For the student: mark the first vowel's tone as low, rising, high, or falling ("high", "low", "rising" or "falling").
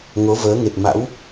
rising